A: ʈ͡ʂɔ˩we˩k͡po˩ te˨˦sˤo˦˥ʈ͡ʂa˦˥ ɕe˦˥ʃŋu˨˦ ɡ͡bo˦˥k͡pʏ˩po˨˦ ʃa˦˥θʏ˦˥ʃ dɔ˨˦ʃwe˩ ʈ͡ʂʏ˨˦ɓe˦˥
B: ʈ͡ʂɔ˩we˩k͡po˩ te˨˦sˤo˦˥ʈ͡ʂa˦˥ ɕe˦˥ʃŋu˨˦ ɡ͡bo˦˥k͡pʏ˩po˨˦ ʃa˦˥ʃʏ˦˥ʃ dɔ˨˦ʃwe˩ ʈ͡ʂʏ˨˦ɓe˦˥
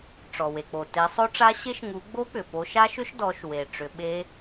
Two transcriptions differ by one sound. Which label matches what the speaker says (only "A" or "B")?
B